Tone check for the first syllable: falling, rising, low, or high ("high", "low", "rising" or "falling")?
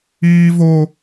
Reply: high